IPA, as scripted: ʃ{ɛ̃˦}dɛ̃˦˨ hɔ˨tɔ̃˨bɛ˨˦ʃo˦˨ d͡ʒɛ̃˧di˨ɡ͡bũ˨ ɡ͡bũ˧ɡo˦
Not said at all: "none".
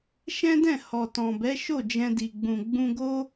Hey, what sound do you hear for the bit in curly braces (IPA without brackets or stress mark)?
ɛ̃˦